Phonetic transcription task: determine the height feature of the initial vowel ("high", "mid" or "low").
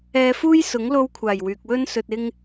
mid